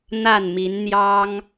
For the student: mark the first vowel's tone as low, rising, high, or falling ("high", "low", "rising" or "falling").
falling